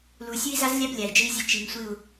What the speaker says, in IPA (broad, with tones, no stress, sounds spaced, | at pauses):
l u˨ sʲ u˦ i̯ z a˦ z lʲ a˦ b lʲ a˨ i̯ d͡ʒ ɨ˦ i̯ zʲ ɨ˦˨ t͡ʃ i˨ ŋ sʷ ɨ˦˨ u̯